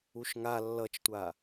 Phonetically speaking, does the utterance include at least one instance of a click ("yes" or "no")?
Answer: no